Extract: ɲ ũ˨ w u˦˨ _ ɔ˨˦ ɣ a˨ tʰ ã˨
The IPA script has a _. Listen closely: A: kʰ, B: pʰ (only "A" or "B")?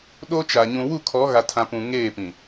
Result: A